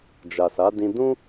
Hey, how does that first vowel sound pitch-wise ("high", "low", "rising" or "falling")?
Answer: low